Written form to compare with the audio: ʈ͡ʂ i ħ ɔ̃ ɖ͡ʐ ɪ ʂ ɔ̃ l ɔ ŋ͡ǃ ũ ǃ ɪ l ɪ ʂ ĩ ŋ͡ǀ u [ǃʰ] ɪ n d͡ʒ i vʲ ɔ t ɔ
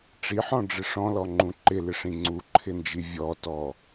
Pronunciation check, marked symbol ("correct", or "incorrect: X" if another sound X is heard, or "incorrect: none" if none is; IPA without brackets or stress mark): correct